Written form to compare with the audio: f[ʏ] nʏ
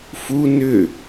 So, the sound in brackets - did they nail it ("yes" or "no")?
no